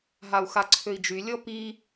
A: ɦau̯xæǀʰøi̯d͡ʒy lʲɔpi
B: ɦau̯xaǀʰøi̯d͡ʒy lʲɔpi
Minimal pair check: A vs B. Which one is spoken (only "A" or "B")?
B